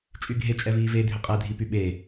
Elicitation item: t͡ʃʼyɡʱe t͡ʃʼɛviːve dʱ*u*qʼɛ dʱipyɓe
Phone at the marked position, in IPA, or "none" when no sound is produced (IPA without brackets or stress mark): ʏ